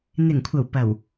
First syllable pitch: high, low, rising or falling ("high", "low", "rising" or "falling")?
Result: low